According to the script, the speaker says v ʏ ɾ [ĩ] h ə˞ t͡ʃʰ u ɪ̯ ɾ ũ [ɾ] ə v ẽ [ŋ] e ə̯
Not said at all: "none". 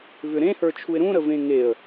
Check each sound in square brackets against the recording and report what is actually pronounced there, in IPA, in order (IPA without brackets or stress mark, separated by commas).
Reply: ẽ, ɾ, ŋ